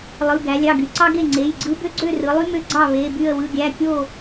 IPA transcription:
lˠ ɯ˩˧˩ ɡ æ˩˧ lʲ ɑ˩˧˩ ɡ y˩˧ ǀ ɑ˦ ɡ e˥˨ ŋ͡ǀ e˩˧˩ j ɡ͡ǀ ɯ˦ b ø˦ ɡ͡ǀ ø˥˨ r ɯ˩˧ lˠ y˦ m ø˦ ɡ͡ǀ ɑ˥˨ β e˩˧˩ b y˥˨ ə̯ w ɯ˩˧˩ ɡʲ æ˩˧˩ kʲ o˥˨

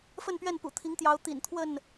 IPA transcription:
f ə˥˨ n p ɥ ɛ˥˨ n p ṵ˨˩ t̪ʰ i˨˦ ŋ t̪ j ɑ˨˦ ʊ̯ t̪ ḭ˨˩ n t̪ʰ w ə˥˨ n

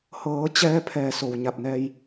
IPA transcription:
h ɤː˩˧ t͡ɕ ɛː˧ pʰ ɛː˧˩ s o˩ w ɲ a˧˩ p̚ n ɛː˧ j

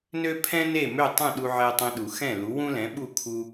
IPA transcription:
n ø˥ pʰ ɛ̃˥ n e˥˩ m ø˥˩ tˤ ũ˥˩ ɗ u˧ ʕ ɛ˧ tˤ ɛ̃˧ ɗ u˩ x ɛ̃˥˩ l u˩˥ w ũ˥ l ɛ̃˩˥ ɓ u˥˩ kʰ u˧

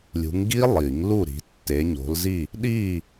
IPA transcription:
lʲ ṳ˨˦ ŋ ɡ i˦˥ lˠ i˨˩˦ ŋ l u˥˨ ɾ i̤˨˦ tː e˨˦ ɲ o̤˨˦ l z i˥˨ | ɗ i˥˨

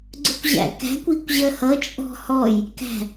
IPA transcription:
ɡ͡ǀ ʊ kʷ ʑ æ̰ k æ̤ kʷ i kʷ ʑ ɜ h ʌ t͡ʃʼ ɔ̤ h ɔ j | k æ̤

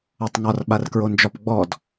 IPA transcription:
ɒ tˤ ŋ ɒ r ɓ a r k ɹ o n d͡ʒ ɒ p ɡ͡b ɔ d

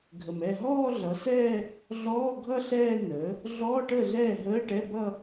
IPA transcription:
ɡʱ ə˩ m ɛ˥˩ ɦ ɔː˥˧ ɮ ʌ˩˥ s ɛː˥˧ | ɮ ɔː˧˥˧ ɡʱ ʌ˥˧ ɬ ɛː˥˧ n əː˩˥ | ɮ ɔː˧˥˧ ʈ əː˥˩ ɮ ɛː˥˩ ɦ əː˧˥˧ ʈ ɛ˧˥˧ b ʌ˥˧

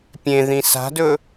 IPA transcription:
pʲ ẽ ð ĩ s a̤ d ɵ

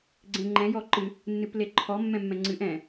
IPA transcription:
ɡ͡ǀ ẽ ŋ͡ǃ ɛ̃ j ɔ ǃ ɨ | nː ɨ p l e ǃʰ ɔ mː ɛ̃ mː ɛ̃ ŋ͡ǀ ɨ ʔ ɛ̃

